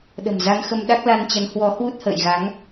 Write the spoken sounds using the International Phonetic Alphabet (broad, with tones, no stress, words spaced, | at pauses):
ɗə̤˨˩mza˧ŋxə˧m ɗa˦˥k̚ la˧nt͡ɕə˨˦nhwɔ˨˦ hwu˦˥t̚hə̰ː˧˨jɣa˨˦ŋ